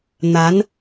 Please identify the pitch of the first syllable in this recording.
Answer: rising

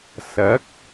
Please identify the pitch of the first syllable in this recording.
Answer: rising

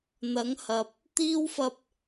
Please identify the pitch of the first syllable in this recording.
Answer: rising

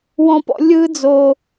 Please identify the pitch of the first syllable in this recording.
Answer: high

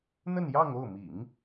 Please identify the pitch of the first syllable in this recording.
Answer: falling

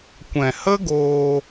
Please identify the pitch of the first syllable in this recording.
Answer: low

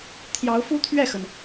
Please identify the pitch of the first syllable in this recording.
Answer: rising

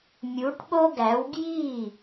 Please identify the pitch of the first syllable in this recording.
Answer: rising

